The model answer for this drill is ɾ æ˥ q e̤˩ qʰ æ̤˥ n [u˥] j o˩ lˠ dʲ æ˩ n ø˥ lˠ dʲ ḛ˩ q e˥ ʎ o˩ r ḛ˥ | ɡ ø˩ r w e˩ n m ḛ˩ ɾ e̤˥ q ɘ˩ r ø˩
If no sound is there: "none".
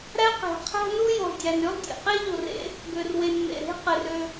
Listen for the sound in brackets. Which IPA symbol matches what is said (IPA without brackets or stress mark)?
u˥